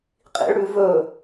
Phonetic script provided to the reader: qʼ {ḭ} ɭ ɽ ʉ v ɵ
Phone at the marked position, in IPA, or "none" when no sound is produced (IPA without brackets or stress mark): ḭ